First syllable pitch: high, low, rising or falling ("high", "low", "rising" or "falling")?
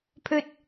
low